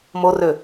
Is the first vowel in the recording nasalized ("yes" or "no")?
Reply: no